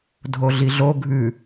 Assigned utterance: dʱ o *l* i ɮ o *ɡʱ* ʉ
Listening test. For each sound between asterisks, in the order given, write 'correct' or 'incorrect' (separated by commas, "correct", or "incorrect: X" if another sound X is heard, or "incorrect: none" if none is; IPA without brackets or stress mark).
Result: incorrect: ɮ, correct